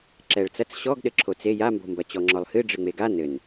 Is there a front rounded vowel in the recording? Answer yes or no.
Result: no